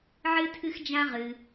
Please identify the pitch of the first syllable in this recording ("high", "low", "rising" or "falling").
high